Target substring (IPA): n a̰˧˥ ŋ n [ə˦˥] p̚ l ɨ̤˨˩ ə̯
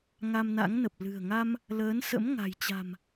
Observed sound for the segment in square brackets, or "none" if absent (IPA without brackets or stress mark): ə˨˩